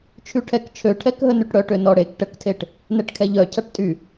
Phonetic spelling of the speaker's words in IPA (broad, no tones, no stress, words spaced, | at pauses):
t͡ʃʰyʈʰɛk t͡ʃʰøʈʰɛkɦə nyʈɽœ ʈønɔɽek ʈəktʰeʈ | nɛʈkʰɛʎœcʰaʈ tʼy